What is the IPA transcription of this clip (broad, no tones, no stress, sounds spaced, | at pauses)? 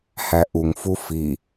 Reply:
h æ ʔ u ŋ f u f i